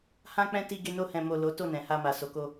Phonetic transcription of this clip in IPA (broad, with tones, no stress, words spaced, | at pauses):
hã˧k͡pɛ̃˧ ti˧ɡe˧no˧ hɛ̃˨mo˨ lo˨˦ to˦˨nɛ̃˨ha˧ma˨ so˨ko˧